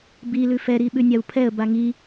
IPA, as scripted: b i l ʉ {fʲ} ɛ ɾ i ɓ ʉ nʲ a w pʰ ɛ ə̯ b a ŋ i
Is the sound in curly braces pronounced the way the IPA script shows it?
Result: no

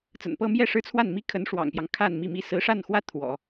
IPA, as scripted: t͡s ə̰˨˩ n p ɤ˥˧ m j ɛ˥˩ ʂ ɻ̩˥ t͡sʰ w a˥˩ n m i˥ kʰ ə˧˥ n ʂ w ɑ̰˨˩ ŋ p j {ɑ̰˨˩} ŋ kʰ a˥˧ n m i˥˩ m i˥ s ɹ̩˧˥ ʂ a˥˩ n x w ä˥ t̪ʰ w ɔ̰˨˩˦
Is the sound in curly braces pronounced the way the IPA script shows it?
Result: no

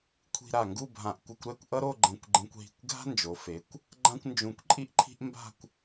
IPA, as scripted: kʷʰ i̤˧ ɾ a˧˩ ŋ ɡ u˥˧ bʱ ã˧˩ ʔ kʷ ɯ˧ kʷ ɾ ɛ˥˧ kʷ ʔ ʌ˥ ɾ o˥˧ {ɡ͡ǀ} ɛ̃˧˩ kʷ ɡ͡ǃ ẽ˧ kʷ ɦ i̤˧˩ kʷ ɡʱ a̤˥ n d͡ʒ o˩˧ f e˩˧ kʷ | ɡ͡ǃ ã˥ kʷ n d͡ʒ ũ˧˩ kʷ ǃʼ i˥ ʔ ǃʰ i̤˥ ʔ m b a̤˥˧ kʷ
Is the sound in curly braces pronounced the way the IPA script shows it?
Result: no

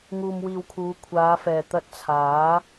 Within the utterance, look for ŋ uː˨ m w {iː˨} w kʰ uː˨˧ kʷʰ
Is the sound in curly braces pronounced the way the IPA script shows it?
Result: yes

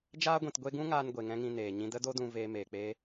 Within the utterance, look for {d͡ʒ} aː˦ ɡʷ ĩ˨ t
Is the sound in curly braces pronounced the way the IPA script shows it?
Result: yes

